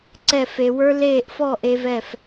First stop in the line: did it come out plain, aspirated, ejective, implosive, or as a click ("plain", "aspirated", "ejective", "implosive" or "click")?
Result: click